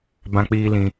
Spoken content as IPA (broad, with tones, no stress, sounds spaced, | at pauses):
b ã˧ k͡p iː˧ l ĩ˧